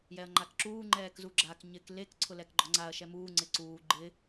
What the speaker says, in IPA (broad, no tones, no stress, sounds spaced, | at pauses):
j ɛ ɐ̯ ŋ͡ǃ a k ǁ uː ŋ͡ǃ ɛː k z u ɡ͡ǁ a k ɲ ɪ k l e k ǀʰ ʊ l ɛ k ɡ͡ǃ ɔ ŋ͡ǀ a ɐ̯ ʃ ɛ m uː ŋ͡ǀ ɪ ǀ uː ɡ͡ǃ ɪ